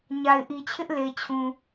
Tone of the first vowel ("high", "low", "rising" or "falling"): low